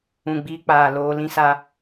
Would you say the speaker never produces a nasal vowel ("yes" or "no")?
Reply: no